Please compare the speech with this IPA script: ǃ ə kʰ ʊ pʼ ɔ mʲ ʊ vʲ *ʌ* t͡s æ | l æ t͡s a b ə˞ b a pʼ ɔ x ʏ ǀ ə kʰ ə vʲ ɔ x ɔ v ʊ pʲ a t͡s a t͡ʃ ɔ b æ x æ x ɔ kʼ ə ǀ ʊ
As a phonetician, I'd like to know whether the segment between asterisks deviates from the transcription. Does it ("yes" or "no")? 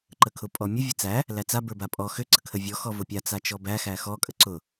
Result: yes